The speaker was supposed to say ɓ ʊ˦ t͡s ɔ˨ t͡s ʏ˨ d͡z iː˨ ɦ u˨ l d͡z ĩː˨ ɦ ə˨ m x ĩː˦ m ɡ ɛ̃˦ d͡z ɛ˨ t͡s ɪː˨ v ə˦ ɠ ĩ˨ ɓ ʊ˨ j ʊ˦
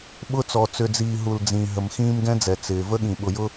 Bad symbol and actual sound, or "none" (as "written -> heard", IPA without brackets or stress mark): none